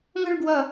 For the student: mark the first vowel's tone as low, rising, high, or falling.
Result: falling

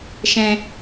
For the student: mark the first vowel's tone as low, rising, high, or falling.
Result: low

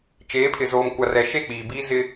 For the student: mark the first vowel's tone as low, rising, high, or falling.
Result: rising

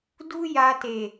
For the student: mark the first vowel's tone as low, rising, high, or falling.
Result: high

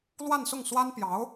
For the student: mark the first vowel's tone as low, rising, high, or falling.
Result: falling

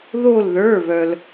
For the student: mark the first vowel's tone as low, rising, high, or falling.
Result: falling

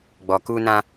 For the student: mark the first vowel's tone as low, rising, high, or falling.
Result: low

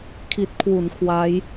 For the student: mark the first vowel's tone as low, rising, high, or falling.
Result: low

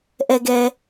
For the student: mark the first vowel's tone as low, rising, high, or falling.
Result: low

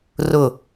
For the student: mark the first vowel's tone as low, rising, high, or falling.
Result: falling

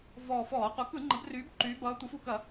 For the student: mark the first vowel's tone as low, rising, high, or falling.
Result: low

